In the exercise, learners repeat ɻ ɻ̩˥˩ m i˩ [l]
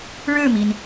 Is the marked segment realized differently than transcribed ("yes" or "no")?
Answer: yes